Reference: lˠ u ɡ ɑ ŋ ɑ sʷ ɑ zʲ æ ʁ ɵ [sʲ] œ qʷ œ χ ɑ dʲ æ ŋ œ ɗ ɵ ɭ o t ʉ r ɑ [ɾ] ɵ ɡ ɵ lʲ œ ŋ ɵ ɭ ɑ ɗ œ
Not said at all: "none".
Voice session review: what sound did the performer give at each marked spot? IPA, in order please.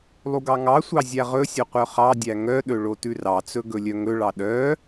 sʲ, t͡s

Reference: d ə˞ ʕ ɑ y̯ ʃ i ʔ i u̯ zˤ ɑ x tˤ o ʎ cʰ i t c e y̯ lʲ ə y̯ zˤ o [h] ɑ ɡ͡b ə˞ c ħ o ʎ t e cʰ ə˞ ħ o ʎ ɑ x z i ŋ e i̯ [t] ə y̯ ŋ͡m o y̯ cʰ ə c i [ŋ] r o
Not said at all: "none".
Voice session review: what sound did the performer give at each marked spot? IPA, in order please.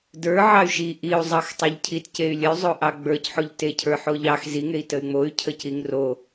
ʔ, t, ŋ

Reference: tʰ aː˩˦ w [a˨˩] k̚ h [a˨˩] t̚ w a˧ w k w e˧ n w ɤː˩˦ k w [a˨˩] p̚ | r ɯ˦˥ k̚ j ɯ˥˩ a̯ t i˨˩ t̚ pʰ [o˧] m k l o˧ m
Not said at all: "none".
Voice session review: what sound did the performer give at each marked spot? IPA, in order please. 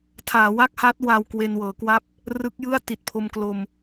a˥˩, a˦˥, a˥˩, o˧

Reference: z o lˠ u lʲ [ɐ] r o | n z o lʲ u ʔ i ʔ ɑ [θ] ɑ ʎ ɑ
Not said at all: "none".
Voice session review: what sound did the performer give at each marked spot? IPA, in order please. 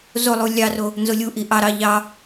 ɑ, ɾ

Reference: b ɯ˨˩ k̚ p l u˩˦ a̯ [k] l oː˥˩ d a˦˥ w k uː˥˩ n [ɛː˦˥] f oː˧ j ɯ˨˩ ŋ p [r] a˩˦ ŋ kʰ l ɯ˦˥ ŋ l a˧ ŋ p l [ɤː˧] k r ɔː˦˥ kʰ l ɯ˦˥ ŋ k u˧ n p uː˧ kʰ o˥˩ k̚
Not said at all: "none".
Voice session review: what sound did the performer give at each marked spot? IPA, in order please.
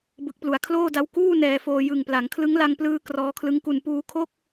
kʰ, ɛː˧, l, ɯː˧

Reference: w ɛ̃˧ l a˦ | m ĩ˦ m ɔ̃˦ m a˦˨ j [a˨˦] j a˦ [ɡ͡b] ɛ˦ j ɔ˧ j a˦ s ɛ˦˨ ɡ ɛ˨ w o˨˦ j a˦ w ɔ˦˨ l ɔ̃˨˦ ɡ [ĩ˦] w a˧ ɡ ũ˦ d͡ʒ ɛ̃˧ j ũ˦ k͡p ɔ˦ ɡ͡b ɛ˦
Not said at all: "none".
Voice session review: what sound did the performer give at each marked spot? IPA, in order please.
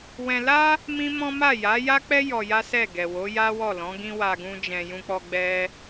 a˨˦, k͡p, ĩ˦

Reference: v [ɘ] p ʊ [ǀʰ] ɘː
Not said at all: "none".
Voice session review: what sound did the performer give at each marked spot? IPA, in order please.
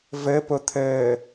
ɘ, t̪ʰ

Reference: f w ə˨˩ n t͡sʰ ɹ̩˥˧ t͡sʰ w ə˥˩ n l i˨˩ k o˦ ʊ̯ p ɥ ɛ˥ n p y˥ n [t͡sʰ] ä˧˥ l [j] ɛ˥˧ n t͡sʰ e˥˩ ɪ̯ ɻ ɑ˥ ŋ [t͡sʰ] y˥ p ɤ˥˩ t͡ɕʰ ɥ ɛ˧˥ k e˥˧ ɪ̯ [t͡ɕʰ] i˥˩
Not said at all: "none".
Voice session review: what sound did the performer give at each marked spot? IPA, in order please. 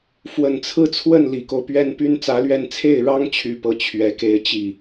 t͡s, ɥ, t͡ɕʰ, t͡ɕ

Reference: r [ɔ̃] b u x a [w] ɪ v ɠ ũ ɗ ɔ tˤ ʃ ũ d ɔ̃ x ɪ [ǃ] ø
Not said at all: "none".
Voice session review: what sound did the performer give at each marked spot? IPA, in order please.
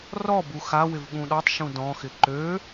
ɔ, w, ǃ

